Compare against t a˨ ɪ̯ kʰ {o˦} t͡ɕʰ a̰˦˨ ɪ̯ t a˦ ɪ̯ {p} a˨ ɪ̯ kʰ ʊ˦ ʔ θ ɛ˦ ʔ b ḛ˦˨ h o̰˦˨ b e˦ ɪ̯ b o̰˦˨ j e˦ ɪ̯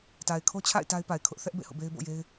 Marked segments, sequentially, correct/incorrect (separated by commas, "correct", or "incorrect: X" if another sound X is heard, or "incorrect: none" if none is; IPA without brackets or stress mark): correct, correct